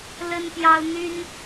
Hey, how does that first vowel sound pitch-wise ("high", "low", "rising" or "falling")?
high